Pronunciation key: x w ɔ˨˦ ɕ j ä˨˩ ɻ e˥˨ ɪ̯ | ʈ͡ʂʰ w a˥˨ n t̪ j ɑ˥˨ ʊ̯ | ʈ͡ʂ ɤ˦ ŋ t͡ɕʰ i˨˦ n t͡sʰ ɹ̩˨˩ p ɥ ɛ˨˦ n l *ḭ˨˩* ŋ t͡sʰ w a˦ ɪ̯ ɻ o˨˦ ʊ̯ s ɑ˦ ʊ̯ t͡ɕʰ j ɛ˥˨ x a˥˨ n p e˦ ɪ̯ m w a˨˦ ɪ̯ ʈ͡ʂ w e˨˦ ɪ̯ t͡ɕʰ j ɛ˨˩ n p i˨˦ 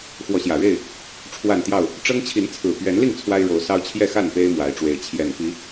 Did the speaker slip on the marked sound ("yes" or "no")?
yes